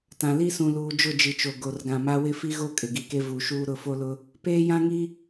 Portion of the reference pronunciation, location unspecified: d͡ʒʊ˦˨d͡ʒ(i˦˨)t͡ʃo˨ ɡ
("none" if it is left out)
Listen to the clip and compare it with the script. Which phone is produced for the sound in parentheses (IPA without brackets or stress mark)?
i˨